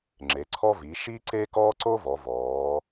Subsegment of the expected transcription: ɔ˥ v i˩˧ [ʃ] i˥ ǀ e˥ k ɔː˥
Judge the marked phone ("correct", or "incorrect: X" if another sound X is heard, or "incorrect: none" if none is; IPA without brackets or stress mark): correct